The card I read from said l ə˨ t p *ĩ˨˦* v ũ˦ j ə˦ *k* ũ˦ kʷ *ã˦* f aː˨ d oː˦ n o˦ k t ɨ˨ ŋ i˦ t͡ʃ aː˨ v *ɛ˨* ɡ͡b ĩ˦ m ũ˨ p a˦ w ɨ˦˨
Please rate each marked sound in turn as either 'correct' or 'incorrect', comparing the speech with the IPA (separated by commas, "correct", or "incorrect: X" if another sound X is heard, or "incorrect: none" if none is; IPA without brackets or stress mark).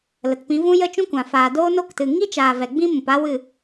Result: correct, incorrect: t͡ʃ, incorrect: ã˨, correct